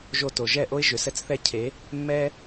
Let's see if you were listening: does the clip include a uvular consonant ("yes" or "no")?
no